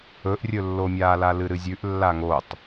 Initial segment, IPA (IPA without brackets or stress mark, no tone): ɵ